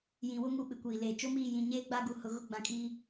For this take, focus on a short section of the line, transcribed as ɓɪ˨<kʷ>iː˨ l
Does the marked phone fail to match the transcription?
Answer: no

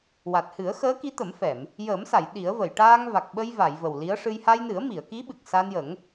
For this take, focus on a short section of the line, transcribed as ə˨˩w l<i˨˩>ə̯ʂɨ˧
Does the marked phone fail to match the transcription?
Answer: yes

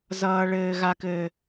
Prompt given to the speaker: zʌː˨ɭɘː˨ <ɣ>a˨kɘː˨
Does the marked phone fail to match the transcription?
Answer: no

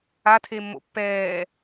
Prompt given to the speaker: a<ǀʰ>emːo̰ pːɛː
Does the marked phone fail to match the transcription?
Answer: yes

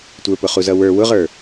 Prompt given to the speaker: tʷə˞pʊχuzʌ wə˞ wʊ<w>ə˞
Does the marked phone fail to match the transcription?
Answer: yes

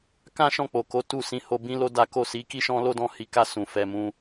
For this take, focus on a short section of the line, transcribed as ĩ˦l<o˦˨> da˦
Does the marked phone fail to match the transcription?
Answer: yes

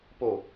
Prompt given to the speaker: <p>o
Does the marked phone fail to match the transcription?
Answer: no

